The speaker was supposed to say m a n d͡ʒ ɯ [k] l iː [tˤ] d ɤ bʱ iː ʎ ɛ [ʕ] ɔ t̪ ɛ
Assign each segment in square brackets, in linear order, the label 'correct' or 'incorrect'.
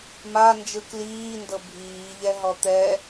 correct, incorrect: n, incorrect: ɦ

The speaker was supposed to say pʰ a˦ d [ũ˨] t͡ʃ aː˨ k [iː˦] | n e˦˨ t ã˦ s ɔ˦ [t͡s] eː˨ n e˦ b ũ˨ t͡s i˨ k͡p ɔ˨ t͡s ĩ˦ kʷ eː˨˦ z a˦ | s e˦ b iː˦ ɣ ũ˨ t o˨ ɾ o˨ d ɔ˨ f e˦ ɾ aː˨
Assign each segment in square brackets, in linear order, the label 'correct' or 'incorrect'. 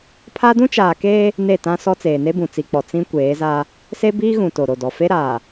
incorrect: ũ˦, incorrect: eː˦, correct

